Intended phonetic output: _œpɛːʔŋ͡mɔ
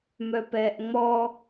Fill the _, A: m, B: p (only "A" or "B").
A